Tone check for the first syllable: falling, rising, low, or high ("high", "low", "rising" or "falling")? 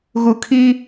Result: low